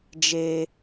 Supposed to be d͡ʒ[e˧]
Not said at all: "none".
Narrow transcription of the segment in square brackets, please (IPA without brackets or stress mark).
e˧